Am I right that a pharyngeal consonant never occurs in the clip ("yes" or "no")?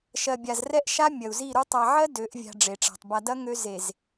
no